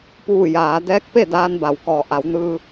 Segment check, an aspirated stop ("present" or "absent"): absent